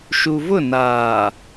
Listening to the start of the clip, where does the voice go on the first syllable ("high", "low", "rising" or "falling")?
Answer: low